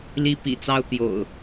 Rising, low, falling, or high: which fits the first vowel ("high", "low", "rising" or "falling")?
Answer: high